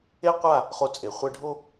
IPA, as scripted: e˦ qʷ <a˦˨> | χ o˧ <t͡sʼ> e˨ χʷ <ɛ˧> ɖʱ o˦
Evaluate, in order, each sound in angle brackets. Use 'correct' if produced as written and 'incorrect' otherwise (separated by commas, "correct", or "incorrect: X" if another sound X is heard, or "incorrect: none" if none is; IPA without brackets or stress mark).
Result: correct, correct, correct